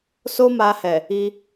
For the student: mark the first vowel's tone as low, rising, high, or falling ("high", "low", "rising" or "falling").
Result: high